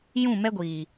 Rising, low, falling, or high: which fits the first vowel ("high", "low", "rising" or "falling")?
falling